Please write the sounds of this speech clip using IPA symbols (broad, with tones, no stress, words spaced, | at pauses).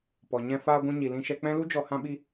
pɔ˨ɲɛ̃˧ faː˧ɡʷũ˧ɲi˨ lĩ˧ʃɛ˧k͡pɛ̃˦ lu˦d͡ʒɔ˧ hã˦ɓi˦